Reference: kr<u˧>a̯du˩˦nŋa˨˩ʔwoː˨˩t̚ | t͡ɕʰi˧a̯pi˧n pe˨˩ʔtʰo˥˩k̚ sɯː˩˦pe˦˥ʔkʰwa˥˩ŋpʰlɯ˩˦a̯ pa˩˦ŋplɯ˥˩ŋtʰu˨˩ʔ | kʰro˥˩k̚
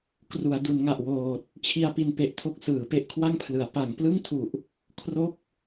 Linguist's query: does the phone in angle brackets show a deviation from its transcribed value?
yes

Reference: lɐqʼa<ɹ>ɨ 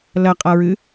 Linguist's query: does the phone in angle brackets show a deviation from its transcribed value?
no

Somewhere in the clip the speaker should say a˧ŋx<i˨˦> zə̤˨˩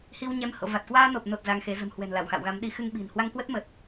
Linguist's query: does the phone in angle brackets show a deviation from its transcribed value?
yes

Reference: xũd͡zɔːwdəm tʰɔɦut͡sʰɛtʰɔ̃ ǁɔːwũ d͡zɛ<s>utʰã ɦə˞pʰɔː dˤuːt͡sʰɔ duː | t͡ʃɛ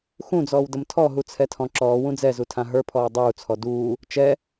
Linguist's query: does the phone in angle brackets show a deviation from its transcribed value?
yes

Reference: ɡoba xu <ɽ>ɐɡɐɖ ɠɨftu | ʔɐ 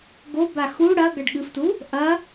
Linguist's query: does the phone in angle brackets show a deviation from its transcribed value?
no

